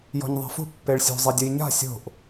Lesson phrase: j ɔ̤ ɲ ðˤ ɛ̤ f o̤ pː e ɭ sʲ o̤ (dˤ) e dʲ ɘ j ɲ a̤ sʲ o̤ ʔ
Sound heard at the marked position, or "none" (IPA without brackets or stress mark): zˤ